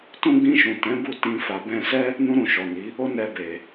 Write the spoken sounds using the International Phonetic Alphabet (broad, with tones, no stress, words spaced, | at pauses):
tũ˧ɡ͡bĩ˧ʃũ˨ tɛ̃˨˦bu˦˨tĩ˧ fa˨bɛ̃˧sɛ˦ | nũ˦ɾũ˧ʃɔ˨ni˨˦ | o˦nɛ˧be˨